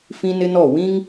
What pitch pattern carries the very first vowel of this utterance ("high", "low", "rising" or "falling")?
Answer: high